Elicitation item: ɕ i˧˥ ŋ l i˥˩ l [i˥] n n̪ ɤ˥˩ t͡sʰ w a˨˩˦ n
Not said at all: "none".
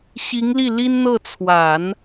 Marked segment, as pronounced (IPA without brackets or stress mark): i˥